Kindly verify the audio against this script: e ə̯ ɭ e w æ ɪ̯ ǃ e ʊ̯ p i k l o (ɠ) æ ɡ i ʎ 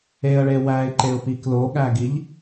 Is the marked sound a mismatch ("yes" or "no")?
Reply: no